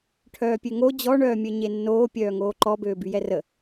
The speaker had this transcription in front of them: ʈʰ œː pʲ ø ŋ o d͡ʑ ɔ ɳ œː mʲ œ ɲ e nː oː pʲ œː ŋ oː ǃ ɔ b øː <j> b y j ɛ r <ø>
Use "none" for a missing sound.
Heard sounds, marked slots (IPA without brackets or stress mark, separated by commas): none, ə